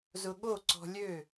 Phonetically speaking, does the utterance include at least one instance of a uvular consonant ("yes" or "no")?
no